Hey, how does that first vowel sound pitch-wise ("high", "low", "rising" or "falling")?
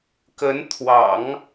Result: rising